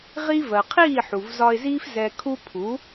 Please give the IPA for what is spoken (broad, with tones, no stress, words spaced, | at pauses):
ʁi˥ vɜ˩qʰiː˥˩ħu˩v zɒ˧ɪ̯ziː˥f zɛ˧ kʰu˥ pʰu˩˥